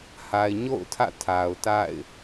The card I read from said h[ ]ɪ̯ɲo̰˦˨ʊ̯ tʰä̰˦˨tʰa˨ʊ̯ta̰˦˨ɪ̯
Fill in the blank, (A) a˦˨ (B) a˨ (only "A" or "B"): B